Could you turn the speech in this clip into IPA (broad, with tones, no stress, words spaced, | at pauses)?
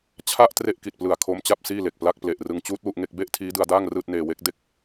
t͡ɕʰa˥˩ʔ tre˥˩ʔki˨˩t̚plɯ˨˩a̯ kʰo˦˥mt͡ɕa˥˩p̚ siː˥˩le˨˩k̚pla˥˩k̚ ple˨˩ʔrɯ˧ŋt͡ɕuː˦˥t̚ wu˥˩ʔŋe˥˩k̚ be˥˩ʔ tʰiː˦˥dɯ˧a̯daː˥˩ŋ rɯː˥˩t̚neː˧we˦˥k̚ de˦˥k̚